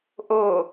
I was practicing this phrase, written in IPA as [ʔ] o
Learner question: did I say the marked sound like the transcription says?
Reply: yes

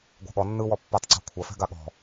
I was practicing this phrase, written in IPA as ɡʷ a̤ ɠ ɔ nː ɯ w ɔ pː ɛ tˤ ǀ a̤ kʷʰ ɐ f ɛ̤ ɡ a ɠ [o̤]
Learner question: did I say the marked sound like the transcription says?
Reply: no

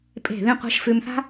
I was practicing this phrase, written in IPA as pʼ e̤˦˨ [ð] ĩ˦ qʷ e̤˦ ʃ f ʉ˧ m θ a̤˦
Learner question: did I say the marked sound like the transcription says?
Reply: yes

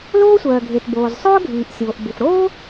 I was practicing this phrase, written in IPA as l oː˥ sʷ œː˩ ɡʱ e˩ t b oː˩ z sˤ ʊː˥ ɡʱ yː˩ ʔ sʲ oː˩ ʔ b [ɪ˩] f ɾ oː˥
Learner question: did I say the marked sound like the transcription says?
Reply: yes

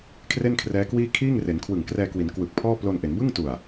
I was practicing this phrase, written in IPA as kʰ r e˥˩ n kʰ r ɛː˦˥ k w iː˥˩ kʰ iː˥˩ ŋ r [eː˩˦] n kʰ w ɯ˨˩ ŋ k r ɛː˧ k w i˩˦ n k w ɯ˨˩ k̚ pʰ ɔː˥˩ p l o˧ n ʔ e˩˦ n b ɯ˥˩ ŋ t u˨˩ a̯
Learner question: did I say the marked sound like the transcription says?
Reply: no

